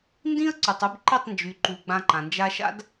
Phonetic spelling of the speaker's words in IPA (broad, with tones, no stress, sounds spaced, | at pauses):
n d ĩ˦ ə̯ ǀ y˨ tˤ u˧ b ǃ i˦˨ tˤ n d͡ʒ y˨ ǃ u˨ ɡ͡b ã˧ ǃ ã˨ n d͡ʒ a˧ ʃ a̰˦ d